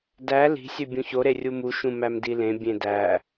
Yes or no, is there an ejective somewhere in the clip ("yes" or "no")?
no